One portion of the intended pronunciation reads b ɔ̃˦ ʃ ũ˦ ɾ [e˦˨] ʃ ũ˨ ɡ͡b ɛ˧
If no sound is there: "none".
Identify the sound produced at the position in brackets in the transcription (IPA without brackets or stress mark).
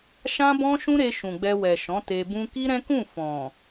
e˧